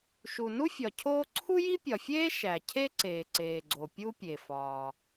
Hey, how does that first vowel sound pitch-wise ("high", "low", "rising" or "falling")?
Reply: low